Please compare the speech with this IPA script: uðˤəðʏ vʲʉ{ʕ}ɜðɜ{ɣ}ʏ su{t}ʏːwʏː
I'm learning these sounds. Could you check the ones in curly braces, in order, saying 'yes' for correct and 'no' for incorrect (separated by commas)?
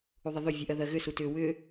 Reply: no, yes, yes